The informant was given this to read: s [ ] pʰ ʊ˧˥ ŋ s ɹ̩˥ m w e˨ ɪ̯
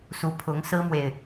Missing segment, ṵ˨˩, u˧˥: u˧˥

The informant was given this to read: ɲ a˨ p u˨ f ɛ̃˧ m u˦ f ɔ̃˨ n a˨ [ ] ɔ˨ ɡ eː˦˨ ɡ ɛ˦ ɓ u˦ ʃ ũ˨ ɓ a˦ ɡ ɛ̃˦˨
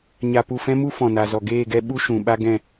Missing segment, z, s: z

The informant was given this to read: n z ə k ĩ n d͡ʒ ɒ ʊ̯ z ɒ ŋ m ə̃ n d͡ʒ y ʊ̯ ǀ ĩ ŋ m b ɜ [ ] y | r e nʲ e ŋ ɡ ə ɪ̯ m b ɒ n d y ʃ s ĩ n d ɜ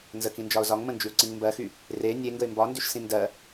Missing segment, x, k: x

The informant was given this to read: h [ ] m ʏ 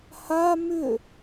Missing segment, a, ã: a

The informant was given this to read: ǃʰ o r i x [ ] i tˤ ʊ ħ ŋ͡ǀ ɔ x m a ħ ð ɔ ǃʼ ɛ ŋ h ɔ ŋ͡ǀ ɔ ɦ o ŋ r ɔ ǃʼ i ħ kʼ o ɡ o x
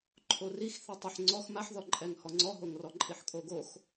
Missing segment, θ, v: θ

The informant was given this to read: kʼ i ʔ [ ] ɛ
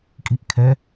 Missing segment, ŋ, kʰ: kʰ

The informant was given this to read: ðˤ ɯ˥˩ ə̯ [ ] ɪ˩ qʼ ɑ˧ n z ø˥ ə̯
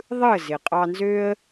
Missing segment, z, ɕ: z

